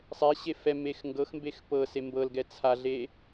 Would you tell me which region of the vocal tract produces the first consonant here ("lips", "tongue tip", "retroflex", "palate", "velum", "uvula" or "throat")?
tongue tip